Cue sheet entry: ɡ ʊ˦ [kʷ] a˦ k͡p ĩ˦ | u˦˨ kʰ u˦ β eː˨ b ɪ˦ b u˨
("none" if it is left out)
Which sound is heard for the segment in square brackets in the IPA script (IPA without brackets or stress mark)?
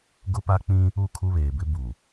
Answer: p